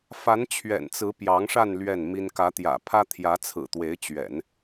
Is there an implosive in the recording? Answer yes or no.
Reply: no